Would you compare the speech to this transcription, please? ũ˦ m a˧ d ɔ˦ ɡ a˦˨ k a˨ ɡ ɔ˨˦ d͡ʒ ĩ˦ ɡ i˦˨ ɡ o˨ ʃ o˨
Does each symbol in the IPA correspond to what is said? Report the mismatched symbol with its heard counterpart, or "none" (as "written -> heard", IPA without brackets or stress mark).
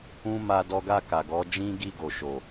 none